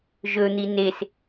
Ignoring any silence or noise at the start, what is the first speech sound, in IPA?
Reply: ʒ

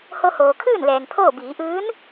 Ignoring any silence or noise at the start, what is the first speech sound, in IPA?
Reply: h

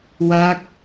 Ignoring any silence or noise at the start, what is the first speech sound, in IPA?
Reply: w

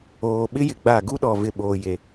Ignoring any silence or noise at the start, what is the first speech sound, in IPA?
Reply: oː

